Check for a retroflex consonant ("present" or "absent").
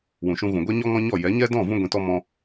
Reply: absent